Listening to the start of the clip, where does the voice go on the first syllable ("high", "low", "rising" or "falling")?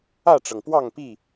falling